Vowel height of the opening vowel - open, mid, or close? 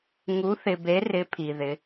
close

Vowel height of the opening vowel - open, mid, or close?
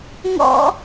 mid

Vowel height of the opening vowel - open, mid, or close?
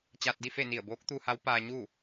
open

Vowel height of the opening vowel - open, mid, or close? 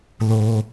mid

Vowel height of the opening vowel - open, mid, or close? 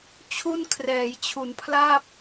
close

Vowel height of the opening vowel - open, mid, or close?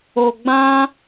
mid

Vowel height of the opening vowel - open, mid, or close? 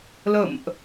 mid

